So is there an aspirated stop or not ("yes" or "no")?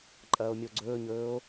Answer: no